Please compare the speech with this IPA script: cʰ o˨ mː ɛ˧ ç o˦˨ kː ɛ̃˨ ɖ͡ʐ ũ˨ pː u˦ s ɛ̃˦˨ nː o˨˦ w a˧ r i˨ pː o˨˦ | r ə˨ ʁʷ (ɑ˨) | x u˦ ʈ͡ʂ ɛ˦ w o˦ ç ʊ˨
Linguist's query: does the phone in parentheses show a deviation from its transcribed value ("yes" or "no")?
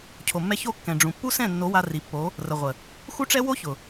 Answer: yes